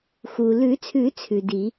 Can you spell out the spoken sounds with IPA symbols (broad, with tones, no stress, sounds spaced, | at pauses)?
x uː˩ l ʉ˨˩˦ t͡sʰ ʉ˨˩˦ t͡sʰ ʉ˩ d i˨˩˦